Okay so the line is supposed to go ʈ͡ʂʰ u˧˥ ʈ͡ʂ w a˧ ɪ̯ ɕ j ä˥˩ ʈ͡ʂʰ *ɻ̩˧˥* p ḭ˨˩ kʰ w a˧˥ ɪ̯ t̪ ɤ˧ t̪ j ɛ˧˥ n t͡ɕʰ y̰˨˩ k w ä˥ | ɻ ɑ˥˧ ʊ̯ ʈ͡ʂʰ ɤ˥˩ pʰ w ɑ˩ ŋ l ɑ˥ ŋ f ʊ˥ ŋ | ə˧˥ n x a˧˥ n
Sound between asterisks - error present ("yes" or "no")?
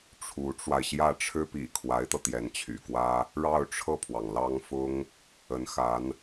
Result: yes